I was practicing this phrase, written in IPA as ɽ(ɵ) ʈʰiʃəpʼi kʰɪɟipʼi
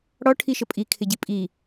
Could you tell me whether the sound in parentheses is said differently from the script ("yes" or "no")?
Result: yes